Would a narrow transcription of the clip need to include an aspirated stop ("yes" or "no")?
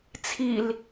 yes